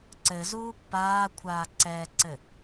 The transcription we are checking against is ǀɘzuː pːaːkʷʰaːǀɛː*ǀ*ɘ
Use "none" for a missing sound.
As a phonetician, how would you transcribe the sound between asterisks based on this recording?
ǀ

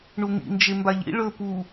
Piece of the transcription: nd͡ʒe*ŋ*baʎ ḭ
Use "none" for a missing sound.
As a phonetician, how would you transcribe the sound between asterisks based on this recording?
m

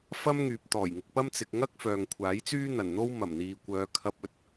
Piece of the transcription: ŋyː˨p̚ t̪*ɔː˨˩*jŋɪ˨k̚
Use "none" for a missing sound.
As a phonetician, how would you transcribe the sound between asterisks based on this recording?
ɔː˨˩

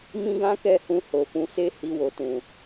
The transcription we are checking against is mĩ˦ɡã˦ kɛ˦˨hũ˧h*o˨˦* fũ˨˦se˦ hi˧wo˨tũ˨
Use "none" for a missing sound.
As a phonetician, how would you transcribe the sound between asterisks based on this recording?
o˨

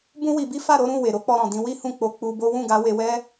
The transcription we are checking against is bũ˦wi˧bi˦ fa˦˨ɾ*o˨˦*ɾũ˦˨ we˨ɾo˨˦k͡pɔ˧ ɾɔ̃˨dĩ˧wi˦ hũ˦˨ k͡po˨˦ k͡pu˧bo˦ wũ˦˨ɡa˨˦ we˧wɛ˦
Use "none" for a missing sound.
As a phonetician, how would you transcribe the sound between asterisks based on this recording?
o˨˦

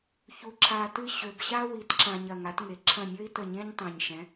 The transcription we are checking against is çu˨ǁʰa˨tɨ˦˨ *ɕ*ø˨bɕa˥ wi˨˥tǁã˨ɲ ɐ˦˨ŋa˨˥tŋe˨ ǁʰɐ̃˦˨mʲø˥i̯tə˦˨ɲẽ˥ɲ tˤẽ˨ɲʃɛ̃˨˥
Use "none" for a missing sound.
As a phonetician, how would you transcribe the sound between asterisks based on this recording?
ɕ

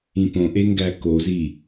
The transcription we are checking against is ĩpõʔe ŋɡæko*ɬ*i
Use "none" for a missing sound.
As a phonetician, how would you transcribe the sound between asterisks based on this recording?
z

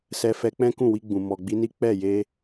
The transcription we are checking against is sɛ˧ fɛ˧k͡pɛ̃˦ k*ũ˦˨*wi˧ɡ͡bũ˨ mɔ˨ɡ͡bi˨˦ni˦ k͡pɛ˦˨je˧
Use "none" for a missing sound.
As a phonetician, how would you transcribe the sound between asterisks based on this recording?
ũ˦˨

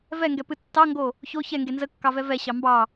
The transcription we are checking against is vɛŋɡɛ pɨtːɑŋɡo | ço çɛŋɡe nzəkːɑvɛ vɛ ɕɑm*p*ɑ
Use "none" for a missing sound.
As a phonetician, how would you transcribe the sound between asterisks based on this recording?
b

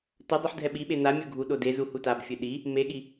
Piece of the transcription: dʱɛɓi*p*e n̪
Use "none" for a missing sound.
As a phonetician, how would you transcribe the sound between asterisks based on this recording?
ɓ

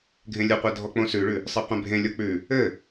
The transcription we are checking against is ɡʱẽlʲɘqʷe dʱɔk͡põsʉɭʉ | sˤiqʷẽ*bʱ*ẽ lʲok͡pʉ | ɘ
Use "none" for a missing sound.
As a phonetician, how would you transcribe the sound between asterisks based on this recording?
bʱ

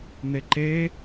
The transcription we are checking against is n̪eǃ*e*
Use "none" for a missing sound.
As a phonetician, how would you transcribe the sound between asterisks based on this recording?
e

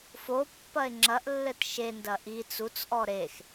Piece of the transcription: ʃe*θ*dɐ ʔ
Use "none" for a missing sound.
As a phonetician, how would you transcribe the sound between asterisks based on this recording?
n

